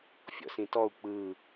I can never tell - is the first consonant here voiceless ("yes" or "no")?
yes